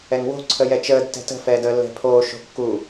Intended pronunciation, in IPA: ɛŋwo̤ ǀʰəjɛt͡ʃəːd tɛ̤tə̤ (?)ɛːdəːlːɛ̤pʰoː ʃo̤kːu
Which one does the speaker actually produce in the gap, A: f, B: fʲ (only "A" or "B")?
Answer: A